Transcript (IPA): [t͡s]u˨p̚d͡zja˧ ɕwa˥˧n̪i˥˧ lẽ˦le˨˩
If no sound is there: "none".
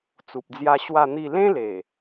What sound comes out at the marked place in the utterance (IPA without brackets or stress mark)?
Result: t͡s